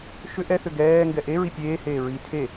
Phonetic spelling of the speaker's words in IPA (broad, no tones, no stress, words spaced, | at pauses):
ʃʏ ʔɛθʏ ɡɛː ŋɡɛʔe ɹipʲeː heːɹi tʰe